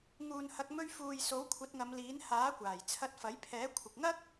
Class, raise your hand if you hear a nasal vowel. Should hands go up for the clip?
no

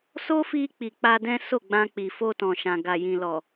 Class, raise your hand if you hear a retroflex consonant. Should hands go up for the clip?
no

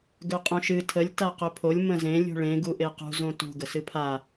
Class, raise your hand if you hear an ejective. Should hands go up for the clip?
yes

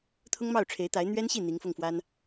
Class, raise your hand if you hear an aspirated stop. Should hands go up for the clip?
yes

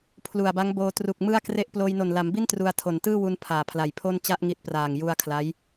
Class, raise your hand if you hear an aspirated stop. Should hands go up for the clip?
yes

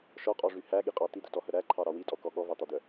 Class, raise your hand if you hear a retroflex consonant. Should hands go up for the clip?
yes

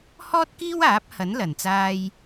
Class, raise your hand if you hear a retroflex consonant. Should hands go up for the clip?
no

